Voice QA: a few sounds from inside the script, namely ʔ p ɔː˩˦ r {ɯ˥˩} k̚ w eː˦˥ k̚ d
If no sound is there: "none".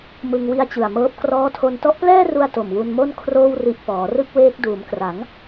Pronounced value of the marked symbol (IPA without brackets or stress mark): ɯ˥˩